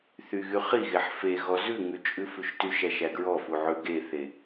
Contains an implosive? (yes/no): no